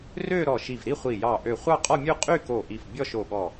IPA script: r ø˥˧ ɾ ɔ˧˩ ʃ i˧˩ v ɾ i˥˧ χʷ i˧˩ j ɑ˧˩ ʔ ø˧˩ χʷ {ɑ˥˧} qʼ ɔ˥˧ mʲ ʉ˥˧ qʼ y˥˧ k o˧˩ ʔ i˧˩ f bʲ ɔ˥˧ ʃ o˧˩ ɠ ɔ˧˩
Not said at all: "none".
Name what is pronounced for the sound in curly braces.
ɑ˥˧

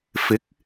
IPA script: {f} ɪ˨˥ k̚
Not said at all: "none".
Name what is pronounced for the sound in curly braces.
f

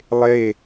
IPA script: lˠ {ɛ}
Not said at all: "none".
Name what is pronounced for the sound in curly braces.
e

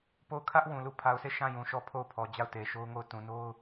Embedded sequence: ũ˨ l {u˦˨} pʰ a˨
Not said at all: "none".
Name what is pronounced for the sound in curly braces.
u˦˨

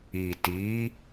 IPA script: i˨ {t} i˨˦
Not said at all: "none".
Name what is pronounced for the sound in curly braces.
t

